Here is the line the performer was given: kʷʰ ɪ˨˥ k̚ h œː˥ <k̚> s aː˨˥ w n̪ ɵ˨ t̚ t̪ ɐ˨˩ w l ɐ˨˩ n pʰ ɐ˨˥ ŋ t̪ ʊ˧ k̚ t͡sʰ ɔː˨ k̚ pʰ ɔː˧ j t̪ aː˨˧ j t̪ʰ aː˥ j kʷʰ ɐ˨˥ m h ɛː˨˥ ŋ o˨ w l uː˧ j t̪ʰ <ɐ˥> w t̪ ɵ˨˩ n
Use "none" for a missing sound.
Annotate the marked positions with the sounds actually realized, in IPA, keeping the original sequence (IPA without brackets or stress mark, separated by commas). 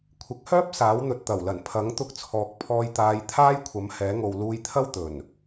p̚, ɐ˥